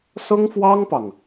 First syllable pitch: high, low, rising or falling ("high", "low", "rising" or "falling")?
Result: high